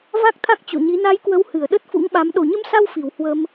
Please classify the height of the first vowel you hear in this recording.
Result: low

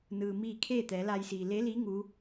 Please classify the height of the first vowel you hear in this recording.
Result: high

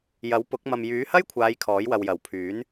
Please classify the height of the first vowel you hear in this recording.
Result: low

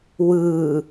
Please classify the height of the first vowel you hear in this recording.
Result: high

